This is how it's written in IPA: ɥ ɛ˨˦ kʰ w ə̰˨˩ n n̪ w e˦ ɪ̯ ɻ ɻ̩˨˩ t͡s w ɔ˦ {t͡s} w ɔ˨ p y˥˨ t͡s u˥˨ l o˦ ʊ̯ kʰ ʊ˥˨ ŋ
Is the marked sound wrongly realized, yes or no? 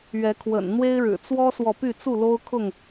yes